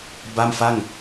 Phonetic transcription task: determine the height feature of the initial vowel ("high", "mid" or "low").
low